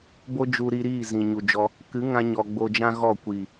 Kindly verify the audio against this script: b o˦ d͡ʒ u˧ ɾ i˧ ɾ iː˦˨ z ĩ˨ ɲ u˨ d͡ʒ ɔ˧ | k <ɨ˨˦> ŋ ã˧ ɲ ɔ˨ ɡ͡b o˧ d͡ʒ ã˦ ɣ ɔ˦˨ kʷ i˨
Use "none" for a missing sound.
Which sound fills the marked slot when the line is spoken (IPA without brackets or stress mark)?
ɨ˨˦